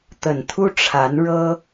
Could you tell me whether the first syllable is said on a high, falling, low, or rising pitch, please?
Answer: low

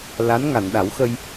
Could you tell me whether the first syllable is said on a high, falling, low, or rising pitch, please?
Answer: rising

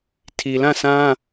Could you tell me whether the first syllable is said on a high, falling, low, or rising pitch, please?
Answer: low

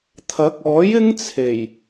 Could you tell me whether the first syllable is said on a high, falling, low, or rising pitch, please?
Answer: rising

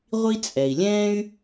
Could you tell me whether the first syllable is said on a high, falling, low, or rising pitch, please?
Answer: high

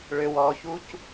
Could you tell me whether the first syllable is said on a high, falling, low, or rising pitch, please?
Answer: low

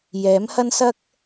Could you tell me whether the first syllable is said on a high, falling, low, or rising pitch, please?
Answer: rising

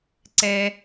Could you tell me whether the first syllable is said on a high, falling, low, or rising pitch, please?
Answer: high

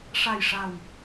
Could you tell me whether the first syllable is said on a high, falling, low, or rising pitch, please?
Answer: low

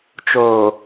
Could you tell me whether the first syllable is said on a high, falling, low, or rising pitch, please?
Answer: low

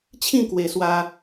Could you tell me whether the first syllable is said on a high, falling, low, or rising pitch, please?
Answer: falling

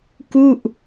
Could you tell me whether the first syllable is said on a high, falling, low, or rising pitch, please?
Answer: falling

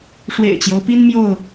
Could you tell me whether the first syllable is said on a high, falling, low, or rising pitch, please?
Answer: low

